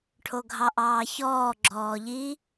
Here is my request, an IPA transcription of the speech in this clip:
ʈʰoɡʱɑʔɑːçɔː ɡ͡ǁɔːʎi

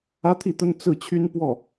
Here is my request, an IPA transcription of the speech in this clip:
ä˥t̪ʰi˥˩t̪ə˥n t͡sɹ̩˥˩t͡ɕʰy˥n pwɔ˥˩

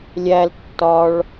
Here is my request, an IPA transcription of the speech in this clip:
lʲæl tːɒɭ

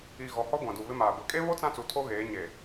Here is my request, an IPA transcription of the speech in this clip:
i˨ɣɔ˨hɔ˦ ɡʷã˨du˨ βɪ˦maː˨ ɡʷe˨kʼe˦βo˦ t͡sã˦t͡su˨ tʰo˦ɣeː˨˦ɲe˨

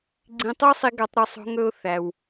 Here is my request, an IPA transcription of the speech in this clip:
ɡ͡ǀĩ˧tˤo˥sˤi˧ ɡa˧tˤɾɔ˧sˤ o̤˧ŋɵ˧ʊ̯ θæ˩w

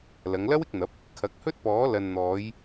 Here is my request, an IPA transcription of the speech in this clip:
lɐ˨˧ŋlɐ˥wɪ˧k̚n̪ɐ˨˥p̚ | kʰɐ˨˥k̚hɵ˥t̚pɔː˨˥ lɐ˨nn̪ɔː˨˧j

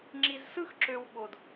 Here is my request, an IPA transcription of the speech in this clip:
ŋ͡ǁi˨z sɯ˦xǁø˨w ɓo˩d

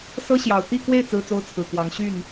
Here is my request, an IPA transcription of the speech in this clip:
sɤ˥ɕjɑ˨˩ʊ̯ t̪i˥˧kwe˥˩ɪ̯ t͡sɹ̩˥t͡so˥ʊ̯t͡sʰɹ̩˨˩kwɑ˧˥ŋ ɕy˥˩n

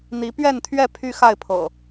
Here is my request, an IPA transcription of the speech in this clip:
n̪i˨˦pɥɛ˥˨nt̪ʰɥɛ˥˨ pʰy˦xa˥˨ɪ̯pʰɤ̰˨˩

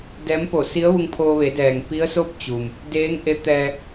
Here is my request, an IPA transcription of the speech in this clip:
dɛː˧˥mpo˧˩ si˧˥ə̯ʋu˧ŋpʰoː˧ʋe˩˧ dɛː˩ŋ pi˧˥ə̯so˥˨p̚t͡ɕu˩m | deː˧˥ŋ ʔe˧˥t̪ɛː˧

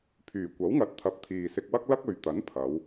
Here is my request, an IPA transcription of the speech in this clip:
pʰyː˨˩kʷɐ˨˥wŋɐ˨˥t̚t̪ʰɐ˨p̚ t̪ʰiː˨sɪ˧k̚wɐ˥k̚ lɐ˥k̚ ɵ˨ɥt̪ɐ˨˥n pʰɐ˨˧w

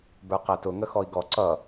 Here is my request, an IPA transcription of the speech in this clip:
bə˞qætʊ ŋəxɔi̯ɡɔ ǀʌ

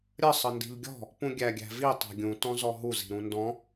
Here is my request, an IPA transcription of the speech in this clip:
ɾʲə sˤəndi̤ʎɡʲɔ̤ | pũɡʲæɡʲæ̤vi tˤæ̤ɡʲũ tɔ̃zɔɦu zi̤ɾũndɔ̃

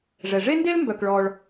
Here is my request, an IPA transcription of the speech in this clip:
ʐɛ˩ ʐe˥nde˥l mbœ˩kɭɔ˩ɭ

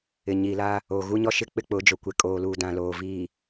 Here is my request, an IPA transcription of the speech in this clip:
ɪ˨ɲi˨la˦ | o˨ ɣu˦ɲɔ˦ʃɪ˦ k͡pɪ˦k͡pʊ˨˦d͡ʒo˨kʷe˨ kʼoː˨luː˨ dã˨loː˨ viː˨

